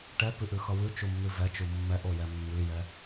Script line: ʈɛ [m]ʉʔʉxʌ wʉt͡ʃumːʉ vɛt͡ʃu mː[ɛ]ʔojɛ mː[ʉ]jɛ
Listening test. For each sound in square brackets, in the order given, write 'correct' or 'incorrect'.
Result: incorrect: p, correct, correct

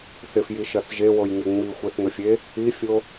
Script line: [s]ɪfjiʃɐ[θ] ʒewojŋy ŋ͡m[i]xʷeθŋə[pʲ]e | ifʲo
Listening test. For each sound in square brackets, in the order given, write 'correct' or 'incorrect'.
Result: incorrect: θ, correct, correct, incorrect: fʲ

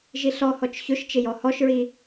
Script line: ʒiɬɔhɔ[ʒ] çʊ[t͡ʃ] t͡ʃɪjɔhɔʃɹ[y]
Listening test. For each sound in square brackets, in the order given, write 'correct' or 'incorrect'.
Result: incorrect: t͡ʃ, incorrect: ʃ, incorrect: i

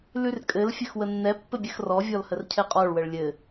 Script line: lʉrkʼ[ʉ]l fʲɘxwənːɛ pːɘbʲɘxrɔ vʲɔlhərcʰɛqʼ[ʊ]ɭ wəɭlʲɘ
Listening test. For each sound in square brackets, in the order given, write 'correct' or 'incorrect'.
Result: incorrect: ɘ, incorrect: ɔ

